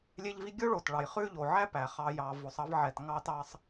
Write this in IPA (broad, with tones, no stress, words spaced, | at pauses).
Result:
lʲe˦ʎvi˦ ɡʲo˥ ɭo˩tɭɑ˩j χʉ˦ʎo˩ ʕæ˥pæ˩χɑ˨ jɑ˨vo˨sˤ ɑ˦vʕɛ˩t ŋɑ˦tɑ˦sˤ